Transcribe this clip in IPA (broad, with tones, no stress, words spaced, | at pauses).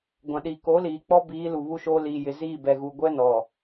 ɡʷã˨ ɗi˨ko˨˦liː˨ k͡pɔ˦biː˨˦ lu˨βu˦ʃoː˦ liː˨jɪ˨ziː˦˨ bɛ˨ɣu˨ ɡʷɛ˦nɔ˨